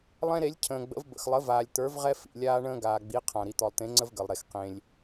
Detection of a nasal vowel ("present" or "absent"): present